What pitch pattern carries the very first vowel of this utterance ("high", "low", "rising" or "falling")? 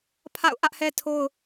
falling